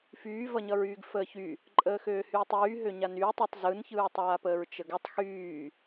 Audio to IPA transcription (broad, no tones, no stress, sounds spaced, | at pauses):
f yː v ʌ ɲ ʌ ɹ yː ɡ f əː ç y | ǃʼ əː x øː h yː tˤ yː ɦ ø ɲ a n yː tˤ u tˤ z ɯ n ç ɯː tˤ aː p əː ɹ t͡ʃ ə ɡ ə tˤ x yː